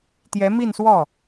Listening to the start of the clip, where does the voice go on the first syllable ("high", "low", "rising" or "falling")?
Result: rising